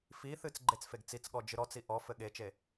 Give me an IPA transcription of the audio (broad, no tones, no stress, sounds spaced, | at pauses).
f i θ ɨ t͡s ɡ͡ǃ e t͡s f e ɡ t͡s i t͡s ɠ ɔ d͡ʒ ɨ ɾ ɔ t͡s i ʔ ɔ f ɘ ɠ e t͡ʃ e